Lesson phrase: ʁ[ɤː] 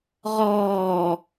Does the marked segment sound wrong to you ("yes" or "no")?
yes